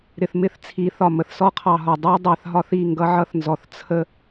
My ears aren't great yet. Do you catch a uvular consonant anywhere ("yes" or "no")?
yes